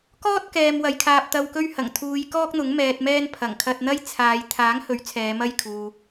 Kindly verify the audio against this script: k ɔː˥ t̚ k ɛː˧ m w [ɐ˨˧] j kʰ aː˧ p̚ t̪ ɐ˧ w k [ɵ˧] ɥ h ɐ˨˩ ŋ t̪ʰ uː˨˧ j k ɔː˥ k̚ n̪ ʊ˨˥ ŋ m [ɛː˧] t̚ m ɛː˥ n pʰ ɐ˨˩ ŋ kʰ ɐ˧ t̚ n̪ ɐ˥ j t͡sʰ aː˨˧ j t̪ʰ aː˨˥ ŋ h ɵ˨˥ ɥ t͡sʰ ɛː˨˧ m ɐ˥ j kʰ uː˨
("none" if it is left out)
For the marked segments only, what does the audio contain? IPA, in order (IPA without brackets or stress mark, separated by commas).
ɐ˨˧, ɵ˥, ɛː˧